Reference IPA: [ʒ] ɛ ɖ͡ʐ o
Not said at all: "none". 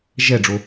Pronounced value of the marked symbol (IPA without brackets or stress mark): ʒ